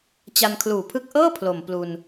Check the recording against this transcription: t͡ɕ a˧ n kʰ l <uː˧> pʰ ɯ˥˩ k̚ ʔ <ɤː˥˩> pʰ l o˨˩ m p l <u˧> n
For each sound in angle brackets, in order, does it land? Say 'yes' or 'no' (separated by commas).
no, yes, yes